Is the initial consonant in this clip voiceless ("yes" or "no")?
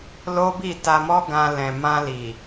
no